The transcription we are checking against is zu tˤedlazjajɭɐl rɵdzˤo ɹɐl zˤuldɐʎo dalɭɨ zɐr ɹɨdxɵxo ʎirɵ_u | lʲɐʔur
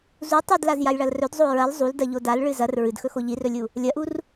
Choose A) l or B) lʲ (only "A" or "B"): B